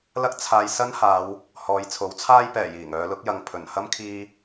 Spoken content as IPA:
l ɐ˥ k̚ t͡sʰ aː˧ j s ɐ˥ n h aː˨˧ w | h ɔː˨˧ j t͡sʰ o˨˥ w t͡sʰ aː˥ j p ɛː˨˩ j iː˨˩ ŋ œː˨˧ l ʊ˨˥ k̚ j ɐ˨ ŋ pʰ ɵ˨˩ n h ɐ˥ m kʰ iː˧

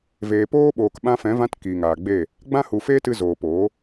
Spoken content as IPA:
v eː˨ p oː˦ ɓ oː˨ k ɓ ã˧ f ɛ̃˨˦ v ã˧ t k iː˨ ŋ aː˨ ɡ͡b e˦˨ | ɡ͡b ã˦ h u˧ f eː˦ t ɨ˧ z oː˨ p oː˨˦

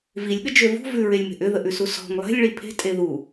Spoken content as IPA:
v i lʲ ɠ ə d͡ʒ ø v ṳ v ʉ ɹ e lʲ m e̤ ʔ ʏ ð ə ʔ ʉ s u s ɔ̤ ŋ lˠ e̤ lʲ ɭ i pʰ e̤ tʼ e ð u

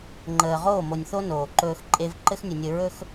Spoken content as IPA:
ŋ͡ǃ əː˨ ʁ oː˦˨ m o˨ nʲ θ o˦ n oː˨ ǃ ɵː˦ x ǃʼ e˦ v ǃ ɘ˦ x nʲ ɵ˨ nʲ ɘ˨ ɹ ɵ˦ x

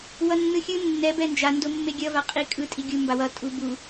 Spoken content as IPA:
w ʌ nː ɯ xʲ ɯ nː ɛ b ɛ n d͡ʒ a n d o mː e ɡʲ ʌ v a qʼ i kʼ ɯ tʼ i ɡʲ u m b a w ʌ tʼ u b u

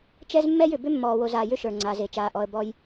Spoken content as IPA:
t͡ʃ ɛ˦ z mː ɛ˦ j ʏ˨ b ʏ˦ mː ɔː˨ w o˨ z aː˨ j ʏ˦ ʃ ə˞˨ ŋ͡ǀ aː˨ z e˨ t͡ʃ aː˨ ʔ ɔ˨ ə̯ b ɔ˨ j

